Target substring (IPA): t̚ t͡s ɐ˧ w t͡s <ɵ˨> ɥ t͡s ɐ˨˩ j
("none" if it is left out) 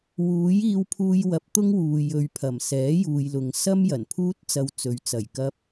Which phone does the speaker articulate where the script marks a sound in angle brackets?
ɵ˨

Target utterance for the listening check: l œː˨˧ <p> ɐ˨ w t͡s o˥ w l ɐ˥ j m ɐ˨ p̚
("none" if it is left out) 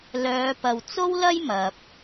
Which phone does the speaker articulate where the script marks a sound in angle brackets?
p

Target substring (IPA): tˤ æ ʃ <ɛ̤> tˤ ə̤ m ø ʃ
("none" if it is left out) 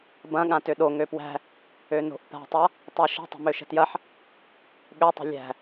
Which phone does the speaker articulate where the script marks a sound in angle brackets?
ə̤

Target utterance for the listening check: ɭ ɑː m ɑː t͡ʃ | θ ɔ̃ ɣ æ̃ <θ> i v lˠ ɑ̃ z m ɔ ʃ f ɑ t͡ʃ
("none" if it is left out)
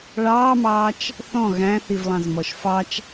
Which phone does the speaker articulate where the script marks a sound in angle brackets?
θ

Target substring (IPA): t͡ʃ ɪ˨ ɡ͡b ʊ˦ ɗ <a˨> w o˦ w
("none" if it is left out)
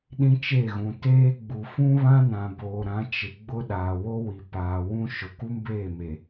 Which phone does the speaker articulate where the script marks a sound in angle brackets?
aː˨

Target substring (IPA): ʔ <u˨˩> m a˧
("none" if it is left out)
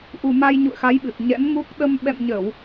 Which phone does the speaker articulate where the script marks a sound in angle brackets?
u˨˩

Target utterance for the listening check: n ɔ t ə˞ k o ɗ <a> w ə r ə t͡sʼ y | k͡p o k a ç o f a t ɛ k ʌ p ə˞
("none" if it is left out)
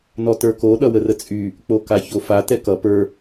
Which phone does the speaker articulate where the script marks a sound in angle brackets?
ʌ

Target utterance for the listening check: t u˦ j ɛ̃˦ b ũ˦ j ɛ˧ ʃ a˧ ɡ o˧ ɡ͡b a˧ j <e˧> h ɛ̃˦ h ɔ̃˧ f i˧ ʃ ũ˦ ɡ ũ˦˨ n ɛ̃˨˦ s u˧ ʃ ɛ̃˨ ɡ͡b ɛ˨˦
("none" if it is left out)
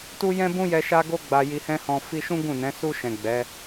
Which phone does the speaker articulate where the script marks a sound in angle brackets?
i˧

